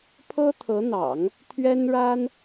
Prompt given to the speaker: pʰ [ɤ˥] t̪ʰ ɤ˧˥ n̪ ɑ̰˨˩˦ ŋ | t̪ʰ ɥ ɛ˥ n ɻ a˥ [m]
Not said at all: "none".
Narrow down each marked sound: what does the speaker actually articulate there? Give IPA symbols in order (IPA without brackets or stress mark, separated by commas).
ɤ˥, n